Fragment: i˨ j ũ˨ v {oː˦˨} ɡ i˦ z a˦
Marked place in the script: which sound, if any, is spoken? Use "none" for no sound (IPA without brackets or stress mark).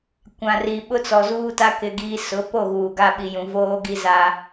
oː˦